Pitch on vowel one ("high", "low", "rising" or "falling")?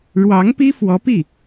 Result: rising